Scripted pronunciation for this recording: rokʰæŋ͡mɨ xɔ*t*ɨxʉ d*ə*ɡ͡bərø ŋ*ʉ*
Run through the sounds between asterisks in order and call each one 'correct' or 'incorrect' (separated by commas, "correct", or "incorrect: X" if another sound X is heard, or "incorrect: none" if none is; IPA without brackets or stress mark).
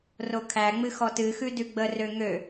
correct, incorrect: ʉ, incorrect: ø